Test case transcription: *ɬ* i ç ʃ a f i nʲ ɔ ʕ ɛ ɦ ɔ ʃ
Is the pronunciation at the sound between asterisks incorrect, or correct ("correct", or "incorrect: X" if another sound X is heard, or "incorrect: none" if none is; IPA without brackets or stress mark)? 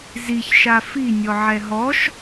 incorrect: z